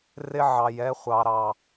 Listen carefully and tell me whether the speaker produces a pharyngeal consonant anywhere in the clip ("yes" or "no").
yes